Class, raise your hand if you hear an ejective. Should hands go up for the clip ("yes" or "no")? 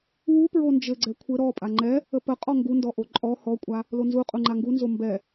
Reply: yes